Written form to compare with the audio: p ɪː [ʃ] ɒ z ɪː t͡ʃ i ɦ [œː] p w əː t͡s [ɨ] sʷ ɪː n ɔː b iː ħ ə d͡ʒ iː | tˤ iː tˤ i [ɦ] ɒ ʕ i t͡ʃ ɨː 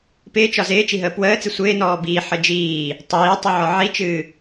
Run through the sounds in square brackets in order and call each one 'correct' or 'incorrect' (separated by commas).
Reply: incorrect, incorrect, correct, incorrect